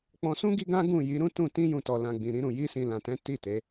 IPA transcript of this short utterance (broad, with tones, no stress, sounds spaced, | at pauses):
k͡p ɔ̃˧ s ũ˦ ɡ i˦ ɡ ã˦ ɡ ũ˦˨ j i˨˦ ɾ ũ˦ t ũ˦˨ t ĩ˧ j ũ˨ t ɔ˨ l ã˨ ɡ͡b ĩ˨ ɾ ĩ˧ ɾ ũ˨ j i˧ s ĩ˨ l ã˨ t ɛ̃˨˦ t i˦˨ t e˨˦